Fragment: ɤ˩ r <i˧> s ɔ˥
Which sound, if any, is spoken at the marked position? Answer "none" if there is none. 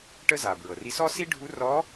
i˧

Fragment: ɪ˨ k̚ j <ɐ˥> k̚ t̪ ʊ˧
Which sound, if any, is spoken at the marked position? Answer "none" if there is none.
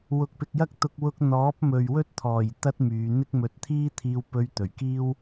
ɐ˥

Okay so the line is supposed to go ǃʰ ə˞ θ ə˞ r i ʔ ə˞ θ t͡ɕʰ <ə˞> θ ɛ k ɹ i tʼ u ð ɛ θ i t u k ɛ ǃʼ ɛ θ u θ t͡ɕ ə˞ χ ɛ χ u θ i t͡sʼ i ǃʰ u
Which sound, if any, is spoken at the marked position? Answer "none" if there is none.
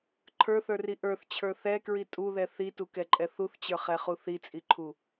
ə˞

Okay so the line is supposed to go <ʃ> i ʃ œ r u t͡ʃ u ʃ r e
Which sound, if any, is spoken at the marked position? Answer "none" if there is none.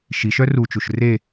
ʃ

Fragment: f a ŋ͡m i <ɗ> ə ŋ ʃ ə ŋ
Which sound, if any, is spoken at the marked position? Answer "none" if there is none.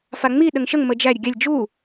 ɗ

